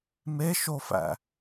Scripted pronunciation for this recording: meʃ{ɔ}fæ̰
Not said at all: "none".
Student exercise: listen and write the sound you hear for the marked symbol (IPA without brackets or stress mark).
o